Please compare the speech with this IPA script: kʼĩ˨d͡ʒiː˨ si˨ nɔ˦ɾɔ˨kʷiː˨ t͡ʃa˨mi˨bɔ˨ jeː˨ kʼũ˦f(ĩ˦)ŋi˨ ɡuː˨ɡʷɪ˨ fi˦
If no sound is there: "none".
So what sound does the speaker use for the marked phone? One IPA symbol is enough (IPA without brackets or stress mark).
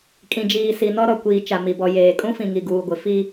ĩ˨